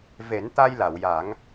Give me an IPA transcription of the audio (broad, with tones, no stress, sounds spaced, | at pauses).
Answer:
v e˨˩˦ n t̪ a˧ j l a˨˩˨ w j a˨˩˦ ŋ